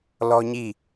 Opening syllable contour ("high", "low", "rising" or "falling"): high